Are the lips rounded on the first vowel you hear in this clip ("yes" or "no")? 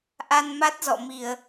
no